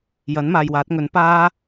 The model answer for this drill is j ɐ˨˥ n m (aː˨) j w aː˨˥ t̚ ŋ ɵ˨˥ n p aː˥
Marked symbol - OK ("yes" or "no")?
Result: yes